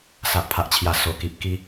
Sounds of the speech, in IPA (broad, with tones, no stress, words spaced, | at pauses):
sa˨ʔpʰa˨ʔt͡ɕʰja˨˩ so˨˩ki˨p̚ ki˧